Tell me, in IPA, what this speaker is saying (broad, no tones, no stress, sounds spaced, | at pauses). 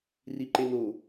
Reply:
r i ǃ e n o